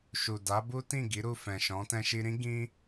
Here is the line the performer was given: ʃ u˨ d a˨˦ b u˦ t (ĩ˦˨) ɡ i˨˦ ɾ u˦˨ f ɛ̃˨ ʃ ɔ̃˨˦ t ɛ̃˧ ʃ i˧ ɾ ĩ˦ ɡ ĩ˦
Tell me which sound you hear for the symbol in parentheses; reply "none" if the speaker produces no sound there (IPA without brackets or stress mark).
ĩ˦˨